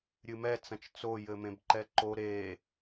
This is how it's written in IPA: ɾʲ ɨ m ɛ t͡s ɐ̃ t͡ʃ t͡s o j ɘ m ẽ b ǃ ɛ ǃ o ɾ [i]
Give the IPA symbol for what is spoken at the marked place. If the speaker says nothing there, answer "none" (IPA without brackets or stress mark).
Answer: e